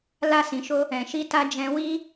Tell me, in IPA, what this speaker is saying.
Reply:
l a˦ s ĩ˧ ʃ o˦ | ɛ̃˨ ʃ i˧ t a˧ d͡ʒ ɛ̃˧ w i˦

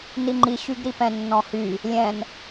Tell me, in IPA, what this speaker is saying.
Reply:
n i ŋ͡ǃ i ɕ y ɡ ɾ i p ɛ̃ nː ɔ̃ h y | lʲ ɛ̃ n

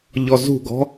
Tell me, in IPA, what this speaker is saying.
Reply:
ʎ ɔ z ṳ ɡ ɔ̤

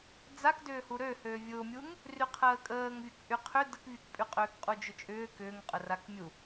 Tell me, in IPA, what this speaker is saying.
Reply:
d͡z a k d ʏː h u ɾ ø h ø vʲ ʊ mʲ u ŋ | r y qʰ əː kʼ əː ŋ vʲ ʊ k ʔ y qʰ ʏ d ə k vʲ u k pʼ y qʼ ʏː k qʼ u d͡ʒ ʏ t͡ʃʼ ʏː k ʏː ŋ qʼ ə r a k mʲ u

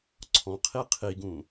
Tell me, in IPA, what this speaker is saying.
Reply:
ǀʰ ɔ̃ qʰ i qʰ i ɡ ũ

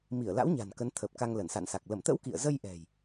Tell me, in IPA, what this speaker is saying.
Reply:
m i˧˩ ə̯ l a̰˧˥ w ɲ a̤˨˩ n k ə˨˦ n t̪ʰ əː˨˩ p̚ k a˧ ŋ l ə˧˩ n s a̰˧˨ n s a˨˩ k̚ l ə˧˩ m t̪ ə̰˧˥ w k ḭ˧˨ ə̯ z ə˧ j ʔ ɛ̤˨˩ j

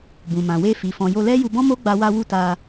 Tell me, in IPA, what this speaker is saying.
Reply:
b ũ˨ m ã˨ w e˧ f i˨ f ɔ̃˨ j o˧ l ɛ˦ j u˧ b ɔ̃˦ m o˦ ɡ͡b a˧ w a˧ w u˧ t a˧

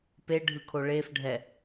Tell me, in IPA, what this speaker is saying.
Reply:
p e ɖʱ ɯ kʰ o ɭ e f ɖʱ ɛ

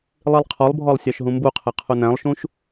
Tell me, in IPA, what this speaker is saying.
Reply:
lˠ i lˠ qʰ ɔ lˠ bʱ ɔ lˠ sʲ ɑ ʃ ɦ ũ m b u qʰ ɛ qʰ u n æ̃ lˠ ʃ ũ ʃ

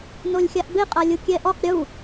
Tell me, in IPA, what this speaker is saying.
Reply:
n o lʲ xʲ a ʔ b e qʼ a lʲ u kʲ ɛ ʔ ɔ q ɾʲ u

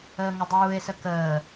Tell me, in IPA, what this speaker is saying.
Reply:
əː ŋ ə dˤ uː e̯ s ə k əː

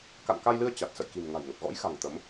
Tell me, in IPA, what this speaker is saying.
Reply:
k a̰˧˨ n k a˧ j l ɨ˧ ə̯ t͡ɕ a˨˩ t̚ s ə̰˧˨ j k i̤˨˩ m ŋ a̤˨˩ j ŋ ə˨˩ p̚ ɣ ɔ̰˧˥ j x a̤˨˩ ŋ t̪ ə˨˦ m

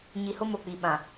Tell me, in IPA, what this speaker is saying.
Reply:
ɲ i˨ h ʊ˦ m o˨ k͡p i˨ ɓ ã˨

